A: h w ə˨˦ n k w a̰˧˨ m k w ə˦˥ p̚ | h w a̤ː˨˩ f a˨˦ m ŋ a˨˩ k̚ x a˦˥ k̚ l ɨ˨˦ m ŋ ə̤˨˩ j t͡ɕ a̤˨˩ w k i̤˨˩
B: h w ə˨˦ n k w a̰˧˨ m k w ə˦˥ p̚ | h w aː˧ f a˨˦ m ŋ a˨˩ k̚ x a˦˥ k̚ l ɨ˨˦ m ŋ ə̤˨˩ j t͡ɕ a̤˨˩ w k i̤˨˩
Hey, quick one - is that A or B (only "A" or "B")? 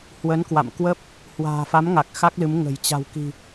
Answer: A